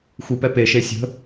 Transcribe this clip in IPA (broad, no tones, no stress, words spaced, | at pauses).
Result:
xʷi pɛpe ʃesʲə̤